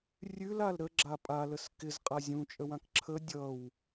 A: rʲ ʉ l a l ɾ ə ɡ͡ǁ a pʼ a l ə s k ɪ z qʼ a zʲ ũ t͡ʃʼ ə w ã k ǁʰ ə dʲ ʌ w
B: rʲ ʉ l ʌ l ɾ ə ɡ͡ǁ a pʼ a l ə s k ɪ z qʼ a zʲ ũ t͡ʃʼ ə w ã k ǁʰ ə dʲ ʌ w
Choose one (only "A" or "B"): A